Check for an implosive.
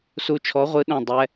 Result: present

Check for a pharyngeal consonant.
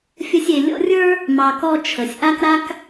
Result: absent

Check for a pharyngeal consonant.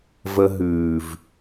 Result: absent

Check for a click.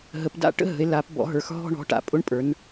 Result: absent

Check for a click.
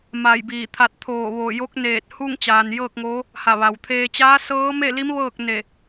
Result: absent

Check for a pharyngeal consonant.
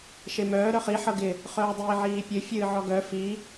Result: present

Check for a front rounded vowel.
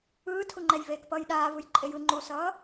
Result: absent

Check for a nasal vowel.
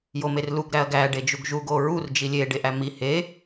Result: absent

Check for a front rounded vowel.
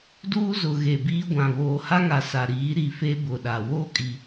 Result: absent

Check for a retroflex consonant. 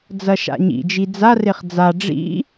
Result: present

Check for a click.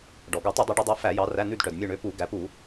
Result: absent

